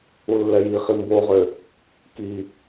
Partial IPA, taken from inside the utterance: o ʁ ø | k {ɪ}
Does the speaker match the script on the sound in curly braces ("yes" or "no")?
no